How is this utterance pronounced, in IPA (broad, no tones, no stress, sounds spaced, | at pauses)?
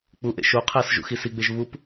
k͡p u ʔ ḛ ʃ o qʰ æ s ʒ ṵ x i s i ɡ͡b e ʒ β u p